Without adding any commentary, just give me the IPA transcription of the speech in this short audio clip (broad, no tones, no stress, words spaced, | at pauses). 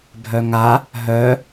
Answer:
bʱœŋa | ɦœ